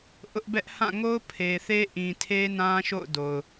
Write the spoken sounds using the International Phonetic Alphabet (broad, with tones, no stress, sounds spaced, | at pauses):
ʔ ʊ˦ ʔ b ɛ˦ ʔ h ã˦˨ ŋ o˦ ʊ̯ pʰ e˨ θ e˦ ʔ ĩ˨ tʰ e˦ n ã˦ ʃ o̰˦˨ ʊ̯ d o˨ ʊ̯